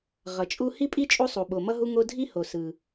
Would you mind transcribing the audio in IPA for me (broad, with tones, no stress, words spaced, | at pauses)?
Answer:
ʁʌ˩t͡ʃʼu˦ hi˥pʼi˥t͡ʃʼu˦sˤu˩ ɓo˩mʌ˦ɦu˦ ŋo˦dʱi˥ho˩ sɯ˩